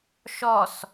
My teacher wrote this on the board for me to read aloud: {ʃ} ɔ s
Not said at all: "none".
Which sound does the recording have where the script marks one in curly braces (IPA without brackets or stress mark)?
ʃ